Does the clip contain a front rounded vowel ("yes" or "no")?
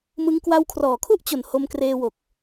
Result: no